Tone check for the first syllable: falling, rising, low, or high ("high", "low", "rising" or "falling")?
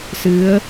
rising